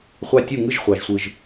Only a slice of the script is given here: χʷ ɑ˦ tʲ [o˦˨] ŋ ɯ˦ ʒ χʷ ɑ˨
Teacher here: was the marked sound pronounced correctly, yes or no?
no